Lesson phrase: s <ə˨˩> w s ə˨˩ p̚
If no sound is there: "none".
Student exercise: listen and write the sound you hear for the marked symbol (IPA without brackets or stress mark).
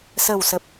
ə˨˩